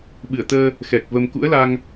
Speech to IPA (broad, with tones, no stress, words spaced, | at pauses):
ɓɨ˧˩ə̯t̪əː˧ | xɛ˨˩k̚və˧m kṵ˧˥ə̯la˧ŋ